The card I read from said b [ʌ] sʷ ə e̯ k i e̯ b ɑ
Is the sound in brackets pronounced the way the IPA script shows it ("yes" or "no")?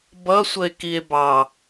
yes